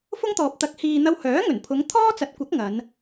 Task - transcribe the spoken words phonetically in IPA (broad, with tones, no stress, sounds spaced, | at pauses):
f ʊ˥ ŋ t̪ ɔː˨ p̚ t̪ ɐ˨˥ k̚ h iː˨ n̪ ɐ˧ w h œː˨˥ ŋ ɵ˨˩ n pʰ ʊ˨˧ ŋ t̪ʰ ɔː˥ t͡s ɐ˨˥ t̚ kʷ ɐ˨˥ k̚ ŋ ɐ˨˧ n